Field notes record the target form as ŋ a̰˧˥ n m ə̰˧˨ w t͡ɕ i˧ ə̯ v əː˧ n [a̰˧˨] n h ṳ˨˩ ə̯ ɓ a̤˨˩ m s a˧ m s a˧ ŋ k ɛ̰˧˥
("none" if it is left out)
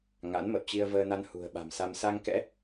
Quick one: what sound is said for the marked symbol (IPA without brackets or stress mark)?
a˧